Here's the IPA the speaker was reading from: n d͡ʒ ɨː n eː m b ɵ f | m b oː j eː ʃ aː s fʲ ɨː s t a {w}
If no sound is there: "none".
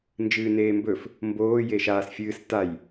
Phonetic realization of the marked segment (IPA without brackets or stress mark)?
j